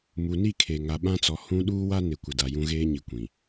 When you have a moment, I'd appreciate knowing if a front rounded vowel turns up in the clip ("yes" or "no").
no